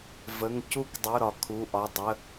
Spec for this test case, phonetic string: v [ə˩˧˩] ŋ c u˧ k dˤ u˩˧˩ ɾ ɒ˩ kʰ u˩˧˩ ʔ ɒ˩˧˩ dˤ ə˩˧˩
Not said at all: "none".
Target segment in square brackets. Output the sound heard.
ə˩˧˩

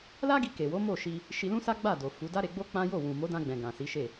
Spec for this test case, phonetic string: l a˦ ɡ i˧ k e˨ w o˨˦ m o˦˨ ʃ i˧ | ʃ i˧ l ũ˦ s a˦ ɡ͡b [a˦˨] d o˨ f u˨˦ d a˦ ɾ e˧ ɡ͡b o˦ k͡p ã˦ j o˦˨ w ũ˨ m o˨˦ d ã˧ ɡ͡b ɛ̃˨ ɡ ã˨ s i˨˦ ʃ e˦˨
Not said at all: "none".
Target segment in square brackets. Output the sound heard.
a˦˨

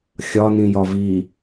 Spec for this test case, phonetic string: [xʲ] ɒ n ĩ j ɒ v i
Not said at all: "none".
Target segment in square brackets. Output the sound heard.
xʲ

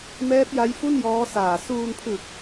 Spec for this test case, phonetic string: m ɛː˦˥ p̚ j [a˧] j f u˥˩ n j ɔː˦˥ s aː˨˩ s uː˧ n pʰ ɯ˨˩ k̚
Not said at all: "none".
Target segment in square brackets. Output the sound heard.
a˦˥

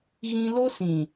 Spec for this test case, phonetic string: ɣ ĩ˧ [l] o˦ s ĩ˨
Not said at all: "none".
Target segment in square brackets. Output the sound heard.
l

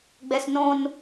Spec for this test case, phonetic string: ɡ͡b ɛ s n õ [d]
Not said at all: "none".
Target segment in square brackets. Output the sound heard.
n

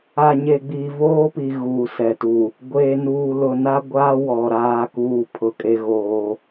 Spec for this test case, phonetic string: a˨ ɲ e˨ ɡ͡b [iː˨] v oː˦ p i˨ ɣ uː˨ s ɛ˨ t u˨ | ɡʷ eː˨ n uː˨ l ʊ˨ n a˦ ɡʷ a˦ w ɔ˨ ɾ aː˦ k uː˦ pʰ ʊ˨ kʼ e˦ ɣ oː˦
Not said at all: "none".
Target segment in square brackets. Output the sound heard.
iː˨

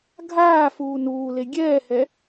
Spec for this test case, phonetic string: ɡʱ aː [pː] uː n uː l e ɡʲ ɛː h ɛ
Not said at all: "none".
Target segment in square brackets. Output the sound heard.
f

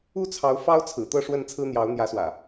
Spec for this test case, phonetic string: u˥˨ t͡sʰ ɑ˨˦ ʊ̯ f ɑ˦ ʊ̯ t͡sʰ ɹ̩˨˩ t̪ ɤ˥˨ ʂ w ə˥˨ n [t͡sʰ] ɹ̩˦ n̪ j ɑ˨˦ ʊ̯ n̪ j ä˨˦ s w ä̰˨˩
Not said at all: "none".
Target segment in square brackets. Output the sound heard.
t͡sʰ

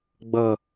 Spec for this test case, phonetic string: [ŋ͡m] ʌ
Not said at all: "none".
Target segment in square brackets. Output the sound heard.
ɡ͡b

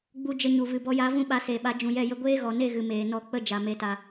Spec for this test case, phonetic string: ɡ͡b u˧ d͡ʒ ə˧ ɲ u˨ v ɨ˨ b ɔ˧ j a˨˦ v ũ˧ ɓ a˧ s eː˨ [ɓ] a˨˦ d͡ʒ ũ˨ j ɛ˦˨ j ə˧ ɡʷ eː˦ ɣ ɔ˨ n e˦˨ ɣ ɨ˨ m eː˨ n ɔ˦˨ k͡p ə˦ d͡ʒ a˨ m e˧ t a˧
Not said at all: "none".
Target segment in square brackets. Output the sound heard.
ɓ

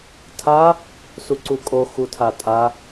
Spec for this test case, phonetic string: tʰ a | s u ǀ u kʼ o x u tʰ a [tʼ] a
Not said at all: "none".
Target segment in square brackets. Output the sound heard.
tʼ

